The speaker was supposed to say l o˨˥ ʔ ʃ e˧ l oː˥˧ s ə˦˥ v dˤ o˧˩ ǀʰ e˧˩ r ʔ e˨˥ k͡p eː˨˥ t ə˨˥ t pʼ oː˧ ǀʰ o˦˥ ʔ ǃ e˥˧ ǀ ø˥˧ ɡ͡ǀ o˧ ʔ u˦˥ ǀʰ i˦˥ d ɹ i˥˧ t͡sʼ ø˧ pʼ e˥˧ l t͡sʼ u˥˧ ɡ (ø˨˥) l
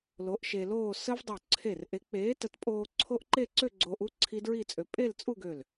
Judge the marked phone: incorrect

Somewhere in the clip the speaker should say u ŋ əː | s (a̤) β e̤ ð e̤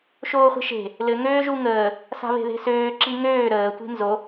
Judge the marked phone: correct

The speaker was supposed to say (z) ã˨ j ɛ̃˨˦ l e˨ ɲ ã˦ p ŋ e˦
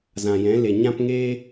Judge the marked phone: correct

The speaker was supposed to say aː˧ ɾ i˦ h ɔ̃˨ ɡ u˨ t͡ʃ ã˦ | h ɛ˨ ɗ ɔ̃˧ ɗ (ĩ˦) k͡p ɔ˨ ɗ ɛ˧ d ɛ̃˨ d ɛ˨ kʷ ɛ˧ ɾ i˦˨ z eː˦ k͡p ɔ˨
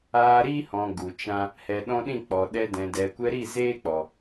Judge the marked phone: incorrect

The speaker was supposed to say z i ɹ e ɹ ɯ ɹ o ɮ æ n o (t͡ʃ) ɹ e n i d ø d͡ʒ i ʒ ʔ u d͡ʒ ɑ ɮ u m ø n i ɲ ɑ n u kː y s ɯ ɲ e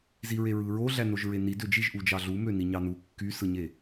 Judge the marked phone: incorrect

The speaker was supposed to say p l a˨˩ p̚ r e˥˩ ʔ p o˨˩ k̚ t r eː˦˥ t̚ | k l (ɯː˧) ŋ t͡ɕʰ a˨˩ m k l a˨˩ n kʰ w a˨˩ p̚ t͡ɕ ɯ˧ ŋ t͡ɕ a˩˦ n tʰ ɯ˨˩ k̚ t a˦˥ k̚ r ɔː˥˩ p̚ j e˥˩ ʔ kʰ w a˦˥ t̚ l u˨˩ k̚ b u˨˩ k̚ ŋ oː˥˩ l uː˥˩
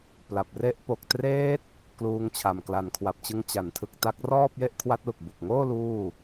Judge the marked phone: incorrect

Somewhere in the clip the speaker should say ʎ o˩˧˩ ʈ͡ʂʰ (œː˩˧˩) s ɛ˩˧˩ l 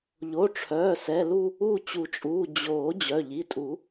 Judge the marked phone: correct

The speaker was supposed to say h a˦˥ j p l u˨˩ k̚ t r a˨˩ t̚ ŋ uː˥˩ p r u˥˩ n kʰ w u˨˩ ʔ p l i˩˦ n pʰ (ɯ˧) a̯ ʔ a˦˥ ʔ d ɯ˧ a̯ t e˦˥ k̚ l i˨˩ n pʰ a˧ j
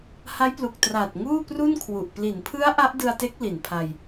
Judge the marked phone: incorrect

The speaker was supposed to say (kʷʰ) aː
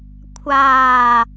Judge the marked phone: correct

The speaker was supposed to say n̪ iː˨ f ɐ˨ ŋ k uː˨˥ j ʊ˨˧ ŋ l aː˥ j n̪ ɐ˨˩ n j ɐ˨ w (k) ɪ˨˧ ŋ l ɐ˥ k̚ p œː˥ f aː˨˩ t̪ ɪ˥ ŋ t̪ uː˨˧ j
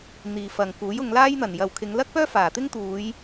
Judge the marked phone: incorrect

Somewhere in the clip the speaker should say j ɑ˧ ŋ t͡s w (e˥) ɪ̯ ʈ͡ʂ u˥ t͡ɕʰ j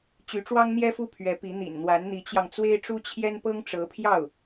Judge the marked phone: correct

